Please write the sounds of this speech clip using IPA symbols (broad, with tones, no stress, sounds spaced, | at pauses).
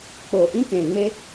k͡p oː˨ ʔ ĩ˦ k ẽː˨ ŋ͡m e˦